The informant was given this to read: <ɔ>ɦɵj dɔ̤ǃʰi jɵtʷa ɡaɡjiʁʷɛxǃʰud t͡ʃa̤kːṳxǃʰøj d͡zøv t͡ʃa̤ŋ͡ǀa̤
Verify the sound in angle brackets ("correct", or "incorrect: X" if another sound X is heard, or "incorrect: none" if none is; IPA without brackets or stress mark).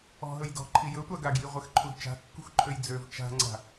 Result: incorrect: ɔ̤